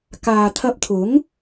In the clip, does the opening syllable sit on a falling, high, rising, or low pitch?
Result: low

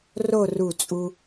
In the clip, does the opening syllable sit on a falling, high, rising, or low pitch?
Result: falling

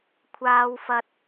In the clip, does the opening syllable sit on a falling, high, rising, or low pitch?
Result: high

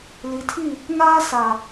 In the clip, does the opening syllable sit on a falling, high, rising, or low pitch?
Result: low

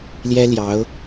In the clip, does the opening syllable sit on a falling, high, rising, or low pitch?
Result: high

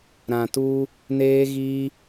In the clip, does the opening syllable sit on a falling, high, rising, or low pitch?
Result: low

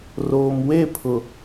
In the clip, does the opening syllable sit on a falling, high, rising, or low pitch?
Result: low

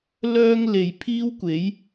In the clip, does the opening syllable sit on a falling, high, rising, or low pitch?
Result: high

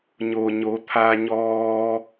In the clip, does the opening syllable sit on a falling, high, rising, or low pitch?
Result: low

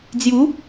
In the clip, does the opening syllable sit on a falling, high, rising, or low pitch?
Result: rising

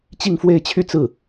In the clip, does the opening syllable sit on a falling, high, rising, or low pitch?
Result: falling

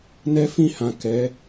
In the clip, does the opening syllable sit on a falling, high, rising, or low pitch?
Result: high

